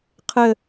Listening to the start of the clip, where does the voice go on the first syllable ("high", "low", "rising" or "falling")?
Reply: falling